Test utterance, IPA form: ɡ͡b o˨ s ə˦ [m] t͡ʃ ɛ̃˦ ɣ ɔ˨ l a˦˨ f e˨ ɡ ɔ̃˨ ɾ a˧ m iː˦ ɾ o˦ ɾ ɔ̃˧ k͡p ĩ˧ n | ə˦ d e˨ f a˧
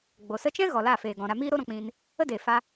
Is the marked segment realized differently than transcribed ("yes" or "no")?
yes